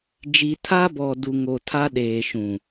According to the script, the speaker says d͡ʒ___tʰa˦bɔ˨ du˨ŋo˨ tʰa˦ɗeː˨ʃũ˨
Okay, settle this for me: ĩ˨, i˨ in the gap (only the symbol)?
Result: i˨